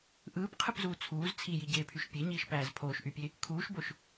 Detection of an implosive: absent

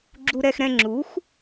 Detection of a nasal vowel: present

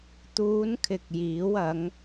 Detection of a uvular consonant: absent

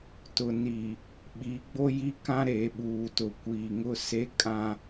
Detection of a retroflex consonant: absent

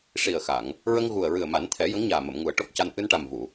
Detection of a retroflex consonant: present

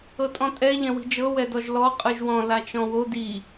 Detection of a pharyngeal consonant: absent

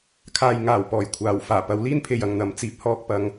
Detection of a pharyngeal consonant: absent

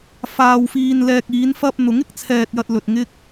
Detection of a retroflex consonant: absent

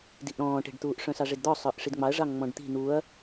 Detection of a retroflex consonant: present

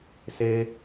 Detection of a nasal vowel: absent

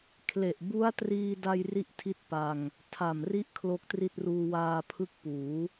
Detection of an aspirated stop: present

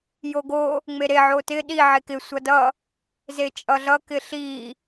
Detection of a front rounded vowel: absent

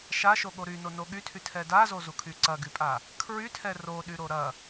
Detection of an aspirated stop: present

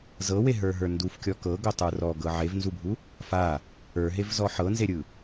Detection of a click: absent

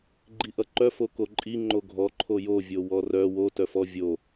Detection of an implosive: absent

